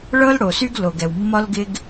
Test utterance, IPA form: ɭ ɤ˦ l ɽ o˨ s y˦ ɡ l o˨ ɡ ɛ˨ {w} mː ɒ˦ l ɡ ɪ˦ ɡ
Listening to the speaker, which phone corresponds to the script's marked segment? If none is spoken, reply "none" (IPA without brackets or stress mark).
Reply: w